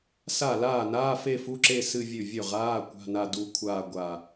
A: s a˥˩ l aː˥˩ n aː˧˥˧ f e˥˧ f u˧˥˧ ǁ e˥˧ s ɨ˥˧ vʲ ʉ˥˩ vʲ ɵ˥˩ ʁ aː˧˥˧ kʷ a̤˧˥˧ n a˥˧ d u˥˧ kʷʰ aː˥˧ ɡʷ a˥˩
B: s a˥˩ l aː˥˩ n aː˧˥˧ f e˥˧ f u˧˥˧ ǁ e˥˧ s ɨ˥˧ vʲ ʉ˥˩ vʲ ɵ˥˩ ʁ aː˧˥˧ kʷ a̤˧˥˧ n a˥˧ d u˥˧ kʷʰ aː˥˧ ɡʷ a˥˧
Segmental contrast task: B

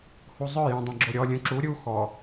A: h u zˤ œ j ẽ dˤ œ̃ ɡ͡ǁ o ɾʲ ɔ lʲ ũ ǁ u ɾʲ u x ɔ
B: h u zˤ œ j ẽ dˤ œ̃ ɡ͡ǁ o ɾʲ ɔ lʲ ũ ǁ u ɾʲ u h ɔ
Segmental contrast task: A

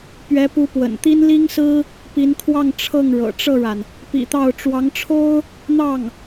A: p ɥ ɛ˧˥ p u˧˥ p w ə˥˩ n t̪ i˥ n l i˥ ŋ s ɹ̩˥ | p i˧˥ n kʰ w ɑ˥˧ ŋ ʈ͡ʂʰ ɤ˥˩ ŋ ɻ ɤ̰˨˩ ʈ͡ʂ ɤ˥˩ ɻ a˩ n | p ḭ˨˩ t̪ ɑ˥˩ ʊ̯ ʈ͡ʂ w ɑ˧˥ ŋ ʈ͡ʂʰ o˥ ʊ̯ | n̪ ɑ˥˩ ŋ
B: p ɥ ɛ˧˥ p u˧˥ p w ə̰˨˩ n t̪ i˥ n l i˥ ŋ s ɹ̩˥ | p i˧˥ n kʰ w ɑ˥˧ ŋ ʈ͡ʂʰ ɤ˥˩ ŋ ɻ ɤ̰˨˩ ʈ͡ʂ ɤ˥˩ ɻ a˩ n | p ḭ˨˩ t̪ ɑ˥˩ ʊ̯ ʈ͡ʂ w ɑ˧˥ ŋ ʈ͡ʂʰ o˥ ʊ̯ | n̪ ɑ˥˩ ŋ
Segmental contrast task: B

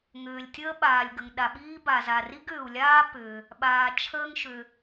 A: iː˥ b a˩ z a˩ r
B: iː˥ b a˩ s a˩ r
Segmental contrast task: A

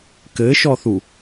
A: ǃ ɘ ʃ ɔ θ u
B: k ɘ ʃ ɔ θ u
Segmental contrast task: B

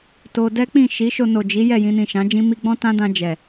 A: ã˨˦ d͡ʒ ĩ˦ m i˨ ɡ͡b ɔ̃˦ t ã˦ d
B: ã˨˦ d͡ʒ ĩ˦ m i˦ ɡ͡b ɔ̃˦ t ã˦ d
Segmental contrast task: B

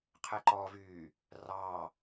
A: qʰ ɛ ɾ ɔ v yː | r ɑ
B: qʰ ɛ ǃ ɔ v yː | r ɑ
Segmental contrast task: B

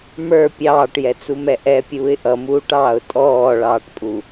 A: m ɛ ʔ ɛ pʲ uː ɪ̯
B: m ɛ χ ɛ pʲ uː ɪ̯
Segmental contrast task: A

